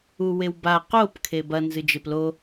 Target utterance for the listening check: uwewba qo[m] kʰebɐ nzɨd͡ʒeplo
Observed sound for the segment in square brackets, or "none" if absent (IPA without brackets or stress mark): p